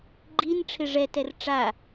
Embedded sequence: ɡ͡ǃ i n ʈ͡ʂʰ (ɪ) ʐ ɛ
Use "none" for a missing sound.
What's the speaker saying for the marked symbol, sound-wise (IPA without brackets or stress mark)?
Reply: ɪ